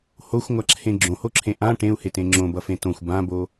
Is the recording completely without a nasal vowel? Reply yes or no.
no